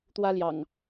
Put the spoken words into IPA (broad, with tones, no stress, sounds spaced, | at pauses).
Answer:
t̪ w ä˦ l j ɑ̰˨˩ ŋ